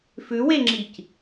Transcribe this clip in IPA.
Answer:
fʉweŋ͡ǁic

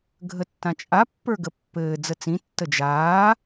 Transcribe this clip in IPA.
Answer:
ɡʱətːãt͡ʃʼa pːə˞ɡəpːɘː d͡zət͡sĩ tːəd͡ʒaː

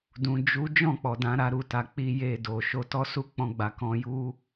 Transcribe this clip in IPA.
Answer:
dũ˨ d͡ʒu˨˦ d͡ʒɔ̃˦˨k͡pɔ˨dã˨˦ ɾa˧ɾu˧ta˨ k͡pi˧je˧do˨ ʃo˧tɔ˦su˦˨ k͡pɔ̃˧ ɡ͡ba˧ kɔ̃˧ju˦

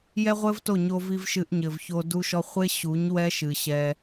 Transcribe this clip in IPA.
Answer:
jɛ˦ʁʷɘ˦vto˦˨ ɲo˧vi˧v ʃɨ˧ʔɲɘ˨vço˧ du˧ʃɔ˧χʷe˦ ɕu˨˦ɲ wɛ˦ʃɨ˨ɕɛ˧

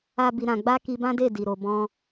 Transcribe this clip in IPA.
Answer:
a˧ bi˨ɾã˨ɡ͡ba˧ ki˧bã˦de˦˨ di˨ɾo˨ bɔ̃˧

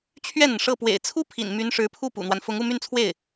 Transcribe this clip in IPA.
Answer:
t͡ɕʰɥɛ˥˩n̪ə˩n ʂɤ˥˩ pwḛ˨˩ɪ̯t͡sʰu˥pʰḭ˨˩n my˧˥nʂɻ̩˧˥pʰu˥˩ pṵ˨˩n̪wa˦n fʊ˧˥ŋu˥˧ my˥˧nt͡sʰwe˥˩ɪ̯

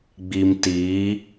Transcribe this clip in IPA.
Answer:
ɡ͡bi˨mtiː˨˦

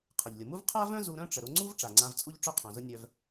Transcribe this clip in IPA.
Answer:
qʰə˩ʎlʲʊ˩mu˥v qʰa˥vœ̃˥ zu˧ɾœ̃˥ʈ͡ʂə˩ ɾʊ˧ŋ͡ǀu˥v ʈ͡ʂa˩ŋ͡ǀã˧vt͡sʼu˥ʎ ʈ͡ʂœ˥qʰœ̃˩zʊ˥ nʲœ˧v

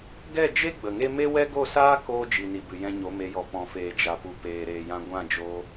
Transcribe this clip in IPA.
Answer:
ɡɛ˦˨d͡ʒe˦ ɡ͡bə˨ŋe˦ me˦wɛ˦ ɡo˦˨saː˦koː˧ d͡ʒi˨ni˨bɨ˨ jɛ̃˧ɲo˨˦me˨˦jɔ˨ pɔ̃˨feː˨d͡ʒa˨ pu˨peː˨ɾeː˨jã˧ ɡʷã˦˨d͡ʒo˧

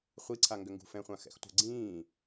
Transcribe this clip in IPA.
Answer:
χʷiǀʰa ŋɡʏŋɡṳfɛ̃χʷã xɛ̰xtʷə̤ ɡ͡ǀĩː

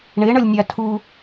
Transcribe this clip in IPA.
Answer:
ɳeɳʌlʲnʲa tʰu

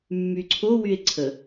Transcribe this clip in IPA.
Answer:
mːyǀʰo wye̯ǀʰə

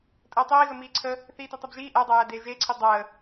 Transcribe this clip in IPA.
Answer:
tʼəːtˤiːɣə miːǀʰə | θiːtitˤebʒiː ʔædˤæjæ deːʒeǀʰi dˤəː

